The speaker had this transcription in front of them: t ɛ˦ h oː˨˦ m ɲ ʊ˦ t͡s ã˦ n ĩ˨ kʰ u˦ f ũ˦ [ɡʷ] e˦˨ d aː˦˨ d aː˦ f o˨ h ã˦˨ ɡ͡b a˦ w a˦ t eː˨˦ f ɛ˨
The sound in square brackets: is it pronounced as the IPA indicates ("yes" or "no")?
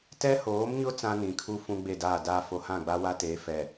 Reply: no